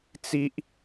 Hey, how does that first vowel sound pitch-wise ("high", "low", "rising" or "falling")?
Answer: high